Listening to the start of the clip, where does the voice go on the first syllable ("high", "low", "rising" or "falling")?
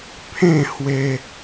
falling